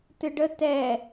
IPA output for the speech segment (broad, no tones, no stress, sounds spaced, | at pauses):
t ɨ ɖ ə t ɛ